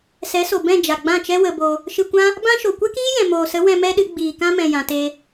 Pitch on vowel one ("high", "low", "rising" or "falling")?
rising